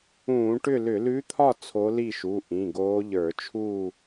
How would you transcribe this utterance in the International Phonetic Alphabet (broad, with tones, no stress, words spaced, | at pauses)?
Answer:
ũː˧˩˧ʈʏ˥˨lʏ˧˩˧ lʉ˧˥t̪ʰɒ˥˨ t͡sʰo˧˥li˥˨ʃu˩˧˩ ʔĩ˩˧˩ɡoː˧˥ ʎə˞˧˩˧t͡ʃʰuː˥˨